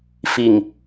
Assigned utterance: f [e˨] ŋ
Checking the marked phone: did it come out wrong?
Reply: yes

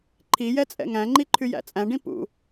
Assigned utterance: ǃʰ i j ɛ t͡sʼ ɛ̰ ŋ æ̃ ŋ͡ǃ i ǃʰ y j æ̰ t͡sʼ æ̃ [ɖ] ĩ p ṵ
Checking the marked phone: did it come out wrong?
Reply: no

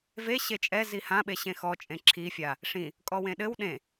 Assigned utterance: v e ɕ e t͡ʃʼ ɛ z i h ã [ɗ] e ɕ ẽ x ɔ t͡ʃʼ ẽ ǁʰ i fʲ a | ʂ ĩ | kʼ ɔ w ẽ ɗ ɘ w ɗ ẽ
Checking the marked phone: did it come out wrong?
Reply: yes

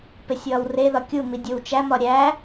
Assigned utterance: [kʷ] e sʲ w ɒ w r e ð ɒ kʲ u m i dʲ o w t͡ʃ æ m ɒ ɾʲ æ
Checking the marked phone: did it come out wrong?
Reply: yes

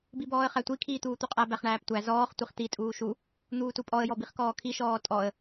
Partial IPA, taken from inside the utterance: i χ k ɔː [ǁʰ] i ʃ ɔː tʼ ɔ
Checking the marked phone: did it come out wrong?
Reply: yes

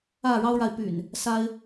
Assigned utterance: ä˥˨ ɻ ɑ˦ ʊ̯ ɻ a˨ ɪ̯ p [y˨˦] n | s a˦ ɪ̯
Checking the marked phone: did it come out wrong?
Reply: yes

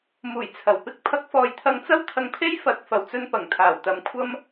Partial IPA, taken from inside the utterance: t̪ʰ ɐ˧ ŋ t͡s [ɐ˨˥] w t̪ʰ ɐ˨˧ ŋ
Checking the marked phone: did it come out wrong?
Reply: yes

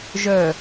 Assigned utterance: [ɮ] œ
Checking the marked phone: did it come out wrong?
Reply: yes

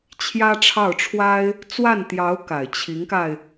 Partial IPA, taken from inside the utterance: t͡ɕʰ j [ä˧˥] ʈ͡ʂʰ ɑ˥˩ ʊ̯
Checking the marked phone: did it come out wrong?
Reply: yes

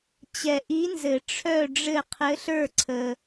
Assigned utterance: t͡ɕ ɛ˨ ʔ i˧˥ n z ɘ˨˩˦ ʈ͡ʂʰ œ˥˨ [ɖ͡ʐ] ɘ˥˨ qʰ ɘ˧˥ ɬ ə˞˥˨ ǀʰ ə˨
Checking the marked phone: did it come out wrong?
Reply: no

